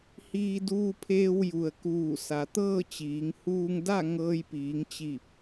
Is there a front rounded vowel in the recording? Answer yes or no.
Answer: no